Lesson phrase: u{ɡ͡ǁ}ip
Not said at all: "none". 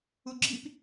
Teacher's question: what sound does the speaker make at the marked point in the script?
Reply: ɡ͡ǁ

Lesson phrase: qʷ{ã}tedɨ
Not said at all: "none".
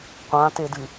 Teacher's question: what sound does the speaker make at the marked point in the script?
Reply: ã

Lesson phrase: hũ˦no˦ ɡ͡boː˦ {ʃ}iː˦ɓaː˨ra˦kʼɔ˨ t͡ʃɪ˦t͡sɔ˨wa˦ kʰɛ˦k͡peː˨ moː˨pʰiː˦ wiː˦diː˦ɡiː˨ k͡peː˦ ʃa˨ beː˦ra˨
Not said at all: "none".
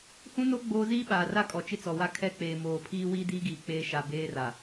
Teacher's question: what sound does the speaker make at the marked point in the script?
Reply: z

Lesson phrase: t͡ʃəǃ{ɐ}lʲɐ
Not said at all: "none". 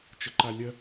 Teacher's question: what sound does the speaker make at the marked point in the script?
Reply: a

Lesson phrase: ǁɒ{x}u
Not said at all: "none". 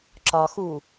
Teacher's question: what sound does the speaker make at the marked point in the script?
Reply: x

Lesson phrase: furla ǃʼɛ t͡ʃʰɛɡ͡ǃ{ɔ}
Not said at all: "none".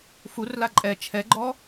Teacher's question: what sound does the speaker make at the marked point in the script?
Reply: ɔ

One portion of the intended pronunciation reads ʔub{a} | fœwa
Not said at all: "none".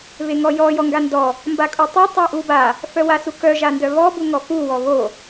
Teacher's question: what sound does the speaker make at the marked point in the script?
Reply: a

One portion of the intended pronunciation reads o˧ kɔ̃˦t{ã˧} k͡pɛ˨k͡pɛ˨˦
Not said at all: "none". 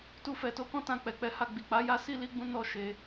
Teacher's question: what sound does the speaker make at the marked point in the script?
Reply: ã˧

